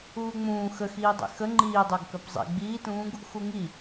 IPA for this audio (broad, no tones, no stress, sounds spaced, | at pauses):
uː ŋ͡m ũː x ə x iː dˤ ḛ x ə ŋ͡ǃ iː dˤ ə˞ ɡ k œ p zˤ ḛ ɡ͡b iː t ũː ɡ | x u ŋ i